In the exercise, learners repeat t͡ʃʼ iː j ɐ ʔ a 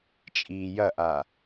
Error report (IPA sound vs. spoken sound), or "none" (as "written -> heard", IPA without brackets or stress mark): none